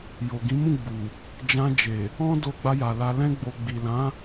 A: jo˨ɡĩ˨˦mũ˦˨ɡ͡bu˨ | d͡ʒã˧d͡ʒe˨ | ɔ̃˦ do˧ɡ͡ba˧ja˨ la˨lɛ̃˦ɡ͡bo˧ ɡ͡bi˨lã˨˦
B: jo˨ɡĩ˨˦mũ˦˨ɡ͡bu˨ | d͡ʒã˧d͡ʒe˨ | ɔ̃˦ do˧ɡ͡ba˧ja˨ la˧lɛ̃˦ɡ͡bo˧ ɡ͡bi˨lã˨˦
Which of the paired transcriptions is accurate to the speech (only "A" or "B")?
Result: B